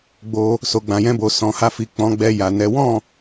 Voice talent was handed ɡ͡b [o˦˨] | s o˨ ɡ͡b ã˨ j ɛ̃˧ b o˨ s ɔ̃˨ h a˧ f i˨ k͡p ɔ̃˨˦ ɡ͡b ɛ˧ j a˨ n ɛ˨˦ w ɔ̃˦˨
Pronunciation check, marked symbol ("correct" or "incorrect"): incorrect